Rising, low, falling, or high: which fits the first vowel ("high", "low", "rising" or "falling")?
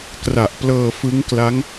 low